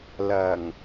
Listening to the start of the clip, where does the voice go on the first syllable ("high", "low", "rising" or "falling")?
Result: low